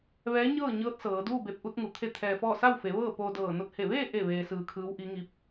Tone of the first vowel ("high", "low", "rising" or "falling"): rising